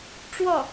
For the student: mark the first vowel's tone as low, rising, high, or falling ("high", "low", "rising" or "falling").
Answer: falling